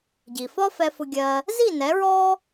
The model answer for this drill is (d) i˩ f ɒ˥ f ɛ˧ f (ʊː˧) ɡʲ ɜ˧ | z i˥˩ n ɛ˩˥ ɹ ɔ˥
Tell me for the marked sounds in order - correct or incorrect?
incorrect: ɟ, incorrect: ʊ˧

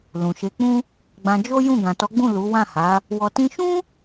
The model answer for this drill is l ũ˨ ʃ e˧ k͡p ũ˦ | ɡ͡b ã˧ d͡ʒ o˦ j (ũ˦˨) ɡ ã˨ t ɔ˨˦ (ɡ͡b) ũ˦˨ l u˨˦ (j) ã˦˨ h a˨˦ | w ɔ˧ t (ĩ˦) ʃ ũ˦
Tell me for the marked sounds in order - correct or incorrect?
correct, correct, incorrect: w, correct

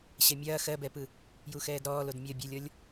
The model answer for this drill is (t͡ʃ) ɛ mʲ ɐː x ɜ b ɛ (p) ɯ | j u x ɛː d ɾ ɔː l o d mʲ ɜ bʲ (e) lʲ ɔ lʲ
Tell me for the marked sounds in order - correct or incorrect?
incorrect: ɕ, correct, incorrect: ɛ

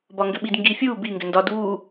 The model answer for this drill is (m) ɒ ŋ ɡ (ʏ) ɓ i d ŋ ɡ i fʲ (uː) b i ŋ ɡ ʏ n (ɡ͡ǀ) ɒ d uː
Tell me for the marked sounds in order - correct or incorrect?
incorrect: b, correct, correct, incorrect: d

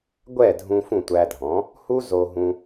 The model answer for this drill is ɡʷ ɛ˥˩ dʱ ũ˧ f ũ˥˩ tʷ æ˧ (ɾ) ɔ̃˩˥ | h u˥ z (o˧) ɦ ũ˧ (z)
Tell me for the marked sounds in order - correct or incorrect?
incorrect: dʱ, correct, incorrect: none

